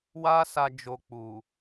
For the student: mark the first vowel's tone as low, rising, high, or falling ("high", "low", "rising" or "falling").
high